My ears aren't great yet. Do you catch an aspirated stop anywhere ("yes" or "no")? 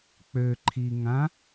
yes